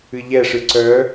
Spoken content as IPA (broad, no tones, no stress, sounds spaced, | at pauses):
ɨ ʎ ɛ ʂ ɨ ǀ œ